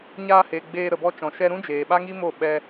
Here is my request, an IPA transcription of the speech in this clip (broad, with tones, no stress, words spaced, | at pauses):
ɲaː˧he˨ ɡ͡beː˧ ɾə˨bɔ˧t͡ʃɔ̃˨ ʃɛ˧ɾũ˦d͡ʒeː˨ ɓa˦ŋi˦mo˦˨ ɓɛ˧